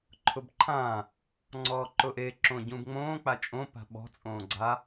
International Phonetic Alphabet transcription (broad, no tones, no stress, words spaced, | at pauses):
ǃʰʊbǃʰã | ŋ͡ǀɔːǃʊʔe ǁõɟũbŋ͡mõː k͡pat͡ʃʼõ pa̤ɓɔ̤ t͡sʼõːɡ͡ǀa